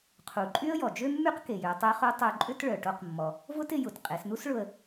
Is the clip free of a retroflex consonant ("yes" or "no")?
no